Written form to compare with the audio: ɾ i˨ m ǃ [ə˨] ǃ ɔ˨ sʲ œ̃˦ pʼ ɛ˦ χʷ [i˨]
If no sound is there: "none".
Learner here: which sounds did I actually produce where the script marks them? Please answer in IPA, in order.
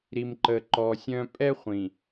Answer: ə˨, ĩ˨

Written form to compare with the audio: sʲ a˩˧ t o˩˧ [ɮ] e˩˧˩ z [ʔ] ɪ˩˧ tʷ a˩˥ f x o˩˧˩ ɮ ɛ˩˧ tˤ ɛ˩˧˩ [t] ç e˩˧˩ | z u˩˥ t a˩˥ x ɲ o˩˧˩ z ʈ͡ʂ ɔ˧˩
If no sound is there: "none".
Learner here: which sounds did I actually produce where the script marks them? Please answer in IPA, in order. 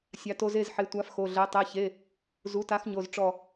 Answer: z, ħ, none

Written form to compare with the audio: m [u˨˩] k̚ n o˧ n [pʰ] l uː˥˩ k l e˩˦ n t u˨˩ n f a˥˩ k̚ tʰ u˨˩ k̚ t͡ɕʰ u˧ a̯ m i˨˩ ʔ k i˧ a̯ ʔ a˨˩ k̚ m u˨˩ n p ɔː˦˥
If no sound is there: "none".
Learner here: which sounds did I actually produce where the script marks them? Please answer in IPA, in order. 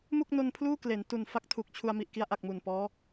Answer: u˥˩, pʰ

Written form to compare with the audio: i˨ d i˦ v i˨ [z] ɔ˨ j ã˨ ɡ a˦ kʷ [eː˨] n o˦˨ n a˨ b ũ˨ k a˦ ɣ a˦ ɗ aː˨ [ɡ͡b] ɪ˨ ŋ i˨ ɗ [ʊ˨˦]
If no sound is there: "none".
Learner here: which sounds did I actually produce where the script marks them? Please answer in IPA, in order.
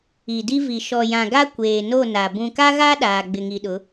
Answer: ʃ, eː˨, ɡ͡b, ʊ˨˦

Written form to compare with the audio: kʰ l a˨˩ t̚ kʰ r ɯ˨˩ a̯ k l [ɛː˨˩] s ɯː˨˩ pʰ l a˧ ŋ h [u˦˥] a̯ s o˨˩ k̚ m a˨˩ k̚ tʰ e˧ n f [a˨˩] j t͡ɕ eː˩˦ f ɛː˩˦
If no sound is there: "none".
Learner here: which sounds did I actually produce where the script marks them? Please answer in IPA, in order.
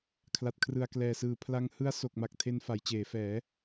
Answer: ɛː˨˩, ɯ˦˥, a˩˦

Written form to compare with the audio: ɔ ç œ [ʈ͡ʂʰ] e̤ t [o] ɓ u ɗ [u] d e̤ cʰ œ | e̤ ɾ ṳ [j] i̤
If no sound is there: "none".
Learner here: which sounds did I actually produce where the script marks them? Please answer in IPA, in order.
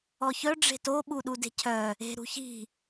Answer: ɖ͡ʐ, o, u, ç

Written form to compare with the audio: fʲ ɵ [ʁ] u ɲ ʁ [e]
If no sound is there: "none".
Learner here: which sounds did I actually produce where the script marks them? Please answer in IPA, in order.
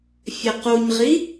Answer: q, i

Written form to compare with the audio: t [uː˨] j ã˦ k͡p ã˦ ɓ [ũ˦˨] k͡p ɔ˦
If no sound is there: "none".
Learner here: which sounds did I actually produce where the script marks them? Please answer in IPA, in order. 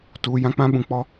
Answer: uː˨, ũ˨

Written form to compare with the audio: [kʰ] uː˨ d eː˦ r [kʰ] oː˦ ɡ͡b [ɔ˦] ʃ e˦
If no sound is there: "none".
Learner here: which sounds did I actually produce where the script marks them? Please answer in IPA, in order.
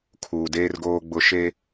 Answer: kʰ, ɡ, ʊ˦

